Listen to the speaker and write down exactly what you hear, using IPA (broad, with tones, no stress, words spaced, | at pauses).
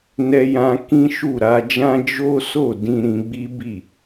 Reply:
nɛ˧jã˧ kĩ˦ʃu˦˨ɾa˧d͡ʒã˦ d͡ʒo˦so˦˨ dĩ˧ɾĩ˧ ɡ͡bi˦bi˦˨